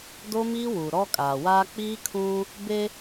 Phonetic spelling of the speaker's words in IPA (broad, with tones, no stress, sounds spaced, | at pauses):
d o˦ m iː˦ w uː˨ ɾ ɔ˦ kʼ aː˨ w aː˦ k͡p iː˦ kʰ ũ˦ | b e˦